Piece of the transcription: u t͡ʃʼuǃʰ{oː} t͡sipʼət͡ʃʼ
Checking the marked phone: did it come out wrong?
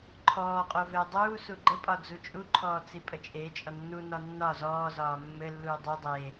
yes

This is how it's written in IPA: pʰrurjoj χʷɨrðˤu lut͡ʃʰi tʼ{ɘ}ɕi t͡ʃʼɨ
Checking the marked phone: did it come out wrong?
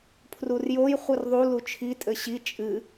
no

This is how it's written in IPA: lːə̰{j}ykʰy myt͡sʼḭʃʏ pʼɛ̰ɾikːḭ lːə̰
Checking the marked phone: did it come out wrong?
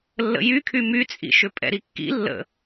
no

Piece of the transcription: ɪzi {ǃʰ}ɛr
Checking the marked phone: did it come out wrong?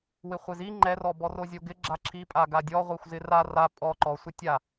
yes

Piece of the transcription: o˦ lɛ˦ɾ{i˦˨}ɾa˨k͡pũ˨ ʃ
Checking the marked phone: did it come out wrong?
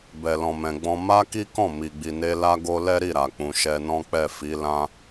no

